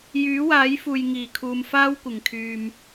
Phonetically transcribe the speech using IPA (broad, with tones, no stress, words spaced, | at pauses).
jyː˨˥waː˨˥jfuː˨j ŋiː˨˩ kʰuː˨m faː˥wkʷɪ˨˩ŋkʰyː˨m